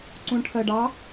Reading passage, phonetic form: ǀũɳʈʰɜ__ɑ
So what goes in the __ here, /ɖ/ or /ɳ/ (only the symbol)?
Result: ɖ